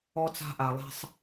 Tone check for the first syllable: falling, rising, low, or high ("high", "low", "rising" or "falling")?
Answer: high